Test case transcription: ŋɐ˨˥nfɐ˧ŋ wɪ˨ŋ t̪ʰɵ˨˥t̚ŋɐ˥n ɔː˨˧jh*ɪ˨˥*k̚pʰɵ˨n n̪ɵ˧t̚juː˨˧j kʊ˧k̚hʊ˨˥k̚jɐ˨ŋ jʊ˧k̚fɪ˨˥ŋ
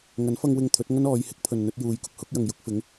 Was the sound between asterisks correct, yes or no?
yes